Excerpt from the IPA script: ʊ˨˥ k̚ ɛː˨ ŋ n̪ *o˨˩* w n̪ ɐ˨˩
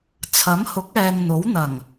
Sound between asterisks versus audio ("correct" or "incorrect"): incorrect